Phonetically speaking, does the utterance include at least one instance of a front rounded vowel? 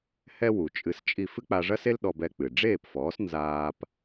no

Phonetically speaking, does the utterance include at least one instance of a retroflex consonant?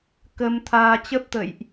no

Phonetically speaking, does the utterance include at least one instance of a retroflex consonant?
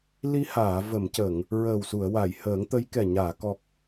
no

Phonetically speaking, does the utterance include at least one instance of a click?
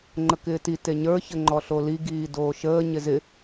yes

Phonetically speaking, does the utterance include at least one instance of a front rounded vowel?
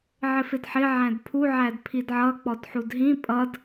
no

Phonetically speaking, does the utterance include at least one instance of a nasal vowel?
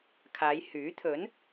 no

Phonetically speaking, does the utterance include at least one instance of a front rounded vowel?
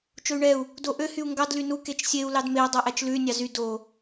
yes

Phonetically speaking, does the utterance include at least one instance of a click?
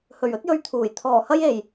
no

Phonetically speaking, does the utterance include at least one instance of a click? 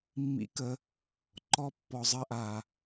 yes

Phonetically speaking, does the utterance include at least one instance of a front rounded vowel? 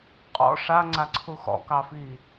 no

